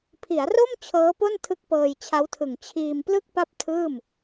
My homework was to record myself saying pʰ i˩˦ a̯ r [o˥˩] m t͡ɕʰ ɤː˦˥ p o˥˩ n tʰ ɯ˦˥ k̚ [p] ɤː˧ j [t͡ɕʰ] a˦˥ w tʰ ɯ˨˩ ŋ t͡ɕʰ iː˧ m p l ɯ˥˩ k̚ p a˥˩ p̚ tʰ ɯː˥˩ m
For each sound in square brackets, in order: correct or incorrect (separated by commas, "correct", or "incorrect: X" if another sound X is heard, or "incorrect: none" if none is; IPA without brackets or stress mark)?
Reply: correct, correct, correct